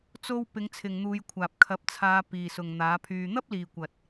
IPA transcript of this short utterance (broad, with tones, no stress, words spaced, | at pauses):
t͡so˧w pɪ˨˧ŋt͡sʰɪ˨ŋn̪uː˨˧jkʷʰaː˨p̚ kʰɐ˨˥p̚t͡sʰaː˨˧piː˨ sʊ˨ŋn̪aː˨˥pʰyː˧ n̪ɐ˥p̚liː˨kʷɐ˨t̚